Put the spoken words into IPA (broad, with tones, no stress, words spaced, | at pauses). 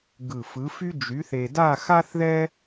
ɡɯ˧˩fɯ˨˥fy˥ d͡ʒy˨˥θe˧da˥˧ xa˥θðɛ˥